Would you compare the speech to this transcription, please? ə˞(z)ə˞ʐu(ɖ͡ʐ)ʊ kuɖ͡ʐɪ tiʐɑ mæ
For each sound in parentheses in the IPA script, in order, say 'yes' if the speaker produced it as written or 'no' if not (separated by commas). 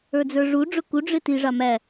no, yes